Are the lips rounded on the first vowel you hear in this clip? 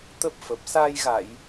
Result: no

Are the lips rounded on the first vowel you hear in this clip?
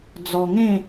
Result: yes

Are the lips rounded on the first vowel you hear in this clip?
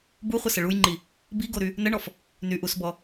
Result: yes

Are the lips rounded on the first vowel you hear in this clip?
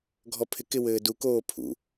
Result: yes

